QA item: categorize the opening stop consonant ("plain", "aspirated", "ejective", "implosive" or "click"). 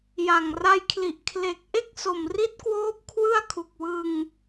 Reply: aspirated